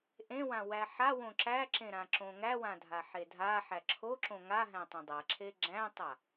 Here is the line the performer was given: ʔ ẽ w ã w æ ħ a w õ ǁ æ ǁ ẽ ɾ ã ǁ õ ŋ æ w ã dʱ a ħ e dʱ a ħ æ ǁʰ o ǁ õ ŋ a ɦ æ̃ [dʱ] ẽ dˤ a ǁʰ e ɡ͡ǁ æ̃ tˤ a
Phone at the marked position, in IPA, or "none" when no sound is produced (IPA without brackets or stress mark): tˤ